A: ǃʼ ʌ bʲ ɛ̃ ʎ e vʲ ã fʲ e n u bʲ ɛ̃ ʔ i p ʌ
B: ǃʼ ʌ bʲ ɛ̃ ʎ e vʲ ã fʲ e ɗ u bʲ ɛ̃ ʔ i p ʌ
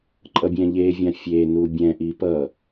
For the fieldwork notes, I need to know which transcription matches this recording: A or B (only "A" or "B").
A